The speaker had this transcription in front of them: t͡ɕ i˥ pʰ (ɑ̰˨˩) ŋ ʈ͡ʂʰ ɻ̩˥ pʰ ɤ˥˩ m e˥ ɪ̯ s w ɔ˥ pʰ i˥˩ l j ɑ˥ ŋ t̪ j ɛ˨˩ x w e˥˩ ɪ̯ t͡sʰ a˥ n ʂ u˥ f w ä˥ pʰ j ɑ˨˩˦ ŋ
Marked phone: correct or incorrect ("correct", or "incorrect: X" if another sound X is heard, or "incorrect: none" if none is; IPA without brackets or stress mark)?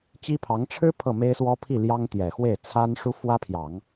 incorrect: ɑ˧˥